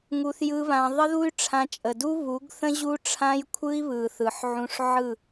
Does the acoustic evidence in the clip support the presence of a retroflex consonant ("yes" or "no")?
yes